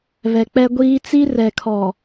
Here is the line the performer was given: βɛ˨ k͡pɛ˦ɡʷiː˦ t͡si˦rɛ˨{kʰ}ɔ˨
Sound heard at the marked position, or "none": kʰ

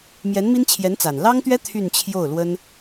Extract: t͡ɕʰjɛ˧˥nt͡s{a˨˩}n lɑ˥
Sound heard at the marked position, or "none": a˨˩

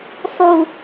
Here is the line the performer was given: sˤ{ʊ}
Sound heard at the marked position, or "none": u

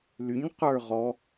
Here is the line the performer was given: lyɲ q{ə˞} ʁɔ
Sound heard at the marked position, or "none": ə˞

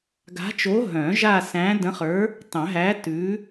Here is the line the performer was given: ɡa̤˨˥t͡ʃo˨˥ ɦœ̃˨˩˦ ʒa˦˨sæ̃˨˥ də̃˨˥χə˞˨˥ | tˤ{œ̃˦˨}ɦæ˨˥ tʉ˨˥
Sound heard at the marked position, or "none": œ̃˨˩˦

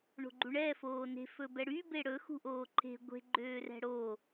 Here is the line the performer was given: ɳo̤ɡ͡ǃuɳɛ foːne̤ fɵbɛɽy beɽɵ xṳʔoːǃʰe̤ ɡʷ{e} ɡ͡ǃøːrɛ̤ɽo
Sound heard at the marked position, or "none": e̤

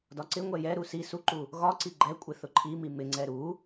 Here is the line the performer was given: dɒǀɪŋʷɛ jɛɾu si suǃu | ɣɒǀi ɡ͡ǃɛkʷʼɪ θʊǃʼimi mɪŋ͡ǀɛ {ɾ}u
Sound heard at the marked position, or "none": ɾ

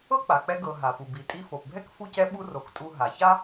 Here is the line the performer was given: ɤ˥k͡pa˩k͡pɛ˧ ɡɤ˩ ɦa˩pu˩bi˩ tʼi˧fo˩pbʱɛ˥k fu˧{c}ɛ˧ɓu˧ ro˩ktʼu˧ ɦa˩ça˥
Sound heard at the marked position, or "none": c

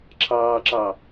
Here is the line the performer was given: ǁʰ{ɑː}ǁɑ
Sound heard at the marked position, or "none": ɑː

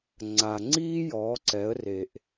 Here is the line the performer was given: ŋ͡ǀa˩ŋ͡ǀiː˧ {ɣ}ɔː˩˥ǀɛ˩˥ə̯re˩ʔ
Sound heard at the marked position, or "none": j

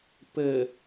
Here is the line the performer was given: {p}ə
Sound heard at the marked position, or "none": p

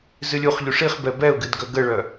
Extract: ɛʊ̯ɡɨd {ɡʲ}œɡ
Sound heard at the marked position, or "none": ɡ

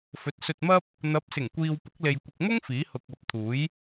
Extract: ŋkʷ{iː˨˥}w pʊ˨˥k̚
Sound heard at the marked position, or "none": iː˨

